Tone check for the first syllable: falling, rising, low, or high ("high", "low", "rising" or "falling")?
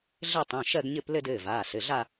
falling